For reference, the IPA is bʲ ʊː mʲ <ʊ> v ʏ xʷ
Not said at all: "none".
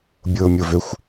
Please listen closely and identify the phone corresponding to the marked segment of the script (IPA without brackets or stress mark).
ʊ